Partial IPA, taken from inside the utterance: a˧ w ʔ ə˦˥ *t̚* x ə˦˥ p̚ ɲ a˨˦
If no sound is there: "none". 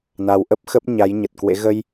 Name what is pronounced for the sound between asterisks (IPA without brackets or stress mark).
p̚